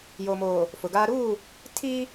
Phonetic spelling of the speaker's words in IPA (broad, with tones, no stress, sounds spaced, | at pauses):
j oː˨ m oː˨ | f ʊ˨ ɡ aː˦ ɾ uː˦˨ | tʰ iː˦